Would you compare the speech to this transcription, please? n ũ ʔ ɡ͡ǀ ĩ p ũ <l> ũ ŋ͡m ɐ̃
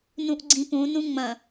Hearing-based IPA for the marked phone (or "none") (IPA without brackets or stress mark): n